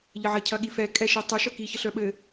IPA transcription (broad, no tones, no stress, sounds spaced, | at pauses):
ʎ ə ʕ ɐ cʰ ɐ ɠ i f ɛ kʼ ɛ ʃ i tˤ ɛ ʃ œ k i ç ə ɬ œ ɓ ɘ